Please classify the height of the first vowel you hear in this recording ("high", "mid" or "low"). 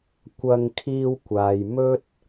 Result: low